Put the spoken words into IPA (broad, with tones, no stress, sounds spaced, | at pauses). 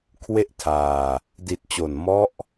kʰ w e˥˩ ʔ tʰ aː˧ | d i˨˩ t̚ t͡ɕ o˨˩ n m ɔ˦˥ ʔ